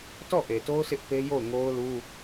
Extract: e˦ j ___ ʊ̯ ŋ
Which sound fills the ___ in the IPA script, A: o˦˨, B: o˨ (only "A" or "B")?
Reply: A